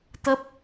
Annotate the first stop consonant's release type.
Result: plain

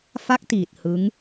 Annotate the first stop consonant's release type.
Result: plain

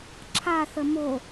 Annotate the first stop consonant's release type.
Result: click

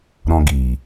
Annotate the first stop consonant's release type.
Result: plain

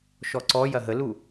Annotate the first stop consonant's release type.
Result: click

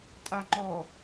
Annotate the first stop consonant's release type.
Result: ejective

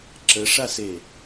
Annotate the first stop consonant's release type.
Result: click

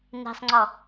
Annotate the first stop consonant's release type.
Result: click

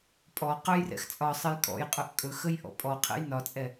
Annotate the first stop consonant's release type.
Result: ejective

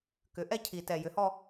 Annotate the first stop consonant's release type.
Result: plain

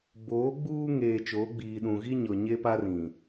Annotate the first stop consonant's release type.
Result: plain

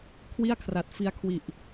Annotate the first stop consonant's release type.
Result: aspirated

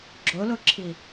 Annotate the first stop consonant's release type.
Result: click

